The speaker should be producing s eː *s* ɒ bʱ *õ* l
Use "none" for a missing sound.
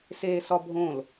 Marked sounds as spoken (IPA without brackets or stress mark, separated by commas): s, õ